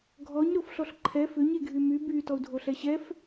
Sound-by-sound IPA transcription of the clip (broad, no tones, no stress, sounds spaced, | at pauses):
ɡʱ ɔ ɲ ɾ o f ɬ ɔ ɬ ǃʰ ɛ f ʏ ɲ e ɡʱ y m y b y t ɔ u̯ dʱ o ɬ ɛ ɕ ɛ f